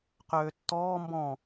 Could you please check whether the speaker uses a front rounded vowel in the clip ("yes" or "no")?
yes